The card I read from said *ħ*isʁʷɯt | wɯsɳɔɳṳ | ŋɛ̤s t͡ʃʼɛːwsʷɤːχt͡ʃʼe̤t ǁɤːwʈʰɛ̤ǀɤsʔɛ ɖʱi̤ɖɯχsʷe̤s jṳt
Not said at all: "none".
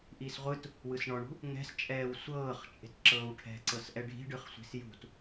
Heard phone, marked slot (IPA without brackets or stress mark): ʔ